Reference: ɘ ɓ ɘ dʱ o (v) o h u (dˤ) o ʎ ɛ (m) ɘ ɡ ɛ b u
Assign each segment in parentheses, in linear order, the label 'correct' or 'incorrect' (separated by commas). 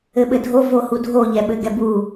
correct, incorrect, incorrect